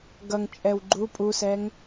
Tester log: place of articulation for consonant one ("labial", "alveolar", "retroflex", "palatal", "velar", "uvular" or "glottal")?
velar